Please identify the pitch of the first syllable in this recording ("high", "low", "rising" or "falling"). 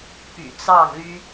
low